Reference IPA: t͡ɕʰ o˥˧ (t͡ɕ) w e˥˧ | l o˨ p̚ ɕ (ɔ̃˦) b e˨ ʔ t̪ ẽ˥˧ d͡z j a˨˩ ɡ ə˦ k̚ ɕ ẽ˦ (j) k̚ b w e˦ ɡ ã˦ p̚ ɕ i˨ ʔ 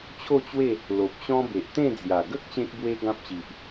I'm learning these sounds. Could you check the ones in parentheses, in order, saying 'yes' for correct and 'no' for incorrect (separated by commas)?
yes, yes, no